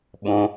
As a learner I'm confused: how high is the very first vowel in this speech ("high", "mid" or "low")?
high